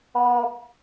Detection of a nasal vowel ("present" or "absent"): absent